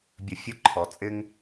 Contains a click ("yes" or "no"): yes